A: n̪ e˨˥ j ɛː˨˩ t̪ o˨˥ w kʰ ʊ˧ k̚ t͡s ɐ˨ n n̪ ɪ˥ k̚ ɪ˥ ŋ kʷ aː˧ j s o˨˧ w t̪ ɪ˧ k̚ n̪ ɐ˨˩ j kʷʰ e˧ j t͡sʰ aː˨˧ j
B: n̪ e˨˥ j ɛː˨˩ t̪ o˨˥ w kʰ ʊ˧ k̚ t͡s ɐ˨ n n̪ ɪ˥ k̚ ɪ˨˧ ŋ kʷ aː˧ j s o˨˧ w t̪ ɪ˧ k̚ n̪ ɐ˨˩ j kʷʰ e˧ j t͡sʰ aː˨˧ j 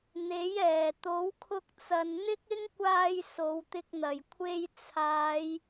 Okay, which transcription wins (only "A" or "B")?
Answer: A